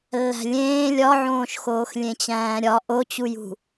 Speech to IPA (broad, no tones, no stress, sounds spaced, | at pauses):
lː æ̤ lʲ ẽː lʲ ɒ ʕ õː ʃ x oː x lʲ ẽ t͡ɕ æ̃ː ɾʲ ɒ ʔ o t͡ɕ u j ṳ